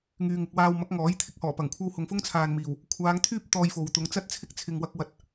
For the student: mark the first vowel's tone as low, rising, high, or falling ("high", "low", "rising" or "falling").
low